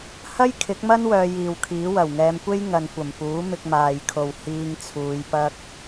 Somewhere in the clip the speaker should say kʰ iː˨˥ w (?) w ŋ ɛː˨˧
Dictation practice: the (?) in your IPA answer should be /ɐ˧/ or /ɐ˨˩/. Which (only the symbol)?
ɐ˨˩